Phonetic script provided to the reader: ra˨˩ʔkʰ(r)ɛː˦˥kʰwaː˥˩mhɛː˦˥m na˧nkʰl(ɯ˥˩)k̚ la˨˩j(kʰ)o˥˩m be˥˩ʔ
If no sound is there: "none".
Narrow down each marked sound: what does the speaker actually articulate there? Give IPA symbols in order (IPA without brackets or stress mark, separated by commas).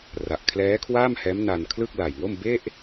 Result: l, ɯ˥˩, ŋ